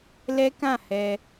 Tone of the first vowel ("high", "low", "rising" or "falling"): high